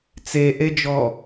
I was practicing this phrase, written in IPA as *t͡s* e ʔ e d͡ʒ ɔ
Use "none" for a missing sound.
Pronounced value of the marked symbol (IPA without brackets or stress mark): t͡s